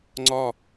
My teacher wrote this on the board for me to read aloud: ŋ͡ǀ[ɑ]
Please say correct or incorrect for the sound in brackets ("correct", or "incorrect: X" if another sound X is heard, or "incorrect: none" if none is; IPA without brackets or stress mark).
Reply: incorrect: ɒ